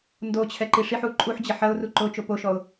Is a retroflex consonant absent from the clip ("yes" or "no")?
no